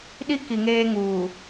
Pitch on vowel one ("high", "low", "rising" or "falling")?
high